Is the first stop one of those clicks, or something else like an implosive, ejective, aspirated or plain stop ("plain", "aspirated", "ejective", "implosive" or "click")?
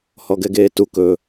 plain